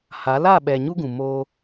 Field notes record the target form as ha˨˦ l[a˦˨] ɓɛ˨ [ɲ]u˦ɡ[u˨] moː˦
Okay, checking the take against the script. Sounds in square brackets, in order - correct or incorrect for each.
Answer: correct, correct, incorrect: ũ˨

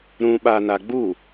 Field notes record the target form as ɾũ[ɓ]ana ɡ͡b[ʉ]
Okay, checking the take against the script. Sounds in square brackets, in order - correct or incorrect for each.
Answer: correct, incorrect: u

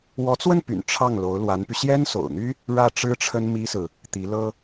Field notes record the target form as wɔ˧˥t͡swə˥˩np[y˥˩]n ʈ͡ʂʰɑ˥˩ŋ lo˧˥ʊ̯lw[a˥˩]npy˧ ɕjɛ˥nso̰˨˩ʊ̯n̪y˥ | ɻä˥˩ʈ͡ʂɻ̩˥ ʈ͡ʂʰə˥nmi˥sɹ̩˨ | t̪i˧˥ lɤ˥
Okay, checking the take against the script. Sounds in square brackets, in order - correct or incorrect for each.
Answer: incorrect: y̰˨˩, incorrect: a˧˥

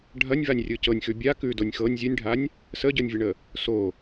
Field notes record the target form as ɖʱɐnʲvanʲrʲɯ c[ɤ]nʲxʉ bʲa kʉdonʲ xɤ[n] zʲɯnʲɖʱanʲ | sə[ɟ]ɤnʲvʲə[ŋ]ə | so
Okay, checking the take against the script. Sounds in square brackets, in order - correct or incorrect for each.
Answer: correct, incorrect: nʲ, correct, incorrect: ɳ

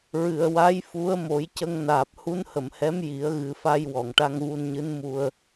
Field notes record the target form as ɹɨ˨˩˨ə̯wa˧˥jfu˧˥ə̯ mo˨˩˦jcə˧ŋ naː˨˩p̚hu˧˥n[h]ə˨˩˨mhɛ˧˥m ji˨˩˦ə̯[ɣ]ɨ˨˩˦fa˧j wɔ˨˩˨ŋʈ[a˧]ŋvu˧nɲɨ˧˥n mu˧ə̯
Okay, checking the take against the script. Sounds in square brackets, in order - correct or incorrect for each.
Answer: correct, correct, correct

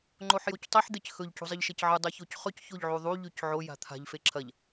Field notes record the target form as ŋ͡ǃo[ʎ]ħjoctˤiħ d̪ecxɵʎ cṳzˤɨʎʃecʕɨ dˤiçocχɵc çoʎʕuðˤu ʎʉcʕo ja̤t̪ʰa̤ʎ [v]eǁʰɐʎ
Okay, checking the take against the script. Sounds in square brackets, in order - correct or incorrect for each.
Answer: incorrect: none, incorrect: f

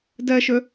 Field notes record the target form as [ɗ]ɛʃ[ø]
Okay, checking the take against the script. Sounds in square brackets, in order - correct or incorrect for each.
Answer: incorrect: d, correct

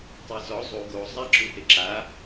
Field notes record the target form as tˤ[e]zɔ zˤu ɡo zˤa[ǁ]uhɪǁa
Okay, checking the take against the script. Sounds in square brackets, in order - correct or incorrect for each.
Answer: correct, correct

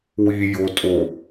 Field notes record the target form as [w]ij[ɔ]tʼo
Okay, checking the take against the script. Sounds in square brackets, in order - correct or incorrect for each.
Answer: correct, incorrect: o

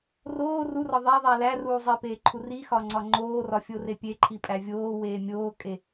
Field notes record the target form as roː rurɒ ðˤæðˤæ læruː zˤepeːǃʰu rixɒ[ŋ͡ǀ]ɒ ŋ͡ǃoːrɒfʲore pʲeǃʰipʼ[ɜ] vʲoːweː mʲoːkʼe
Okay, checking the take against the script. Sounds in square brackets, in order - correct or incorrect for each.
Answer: correct, incorrect: æ

